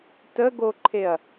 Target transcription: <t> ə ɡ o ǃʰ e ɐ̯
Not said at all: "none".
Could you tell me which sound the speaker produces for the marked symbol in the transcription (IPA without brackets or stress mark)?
t